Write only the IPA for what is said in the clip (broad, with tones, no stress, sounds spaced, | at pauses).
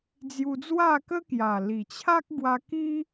d͡z j u˧ d͡z w a˥˧ k ə˦ k j a˨˩ l i˨˩ t͡ɕʰ a˦ k̚ ɡ w a˧ k i˦